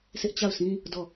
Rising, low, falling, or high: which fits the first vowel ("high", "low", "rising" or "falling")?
high